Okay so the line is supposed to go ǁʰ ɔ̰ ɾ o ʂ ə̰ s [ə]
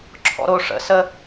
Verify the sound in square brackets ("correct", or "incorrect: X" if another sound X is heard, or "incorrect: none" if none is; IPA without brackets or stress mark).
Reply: correct